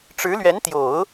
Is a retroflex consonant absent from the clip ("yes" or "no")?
no